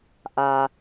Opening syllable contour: low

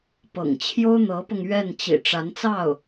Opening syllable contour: low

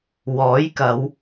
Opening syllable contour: rising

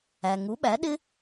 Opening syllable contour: low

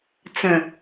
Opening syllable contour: low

